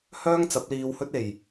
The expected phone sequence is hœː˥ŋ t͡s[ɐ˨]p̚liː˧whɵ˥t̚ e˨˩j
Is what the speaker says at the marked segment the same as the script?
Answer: no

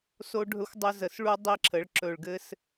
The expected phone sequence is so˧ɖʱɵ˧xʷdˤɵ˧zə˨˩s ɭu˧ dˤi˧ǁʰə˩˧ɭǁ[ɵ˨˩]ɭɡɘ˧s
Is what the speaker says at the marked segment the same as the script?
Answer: yes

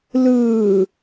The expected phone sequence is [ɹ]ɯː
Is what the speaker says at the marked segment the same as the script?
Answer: no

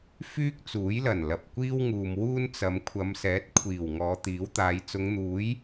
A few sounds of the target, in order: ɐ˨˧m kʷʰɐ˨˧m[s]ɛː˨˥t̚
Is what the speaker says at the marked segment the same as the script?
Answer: yes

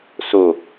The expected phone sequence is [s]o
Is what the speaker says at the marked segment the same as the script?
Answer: yes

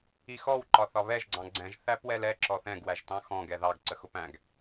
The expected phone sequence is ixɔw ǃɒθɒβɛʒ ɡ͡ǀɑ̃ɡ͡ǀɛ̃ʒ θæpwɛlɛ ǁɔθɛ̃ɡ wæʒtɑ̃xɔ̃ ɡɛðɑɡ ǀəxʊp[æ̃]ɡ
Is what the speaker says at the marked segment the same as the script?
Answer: yes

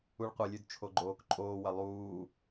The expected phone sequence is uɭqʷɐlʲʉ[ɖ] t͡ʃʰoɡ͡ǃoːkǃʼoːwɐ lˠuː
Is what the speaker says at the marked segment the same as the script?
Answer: no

